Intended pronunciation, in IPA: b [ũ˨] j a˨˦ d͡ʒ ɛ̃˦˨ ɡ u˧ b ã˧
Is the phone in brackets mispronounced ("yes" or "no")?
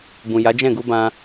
no